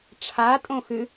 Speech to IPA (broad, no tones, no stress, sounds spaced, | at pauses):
ʈ͡ʂʰ a tʼ õ x ɨ